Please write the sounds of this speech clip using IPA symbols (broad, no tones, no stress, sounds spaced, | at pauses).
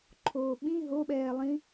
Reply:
ǃʰ oː ɓ ĩ ɦ o ɓ ɛː lˠ ĩ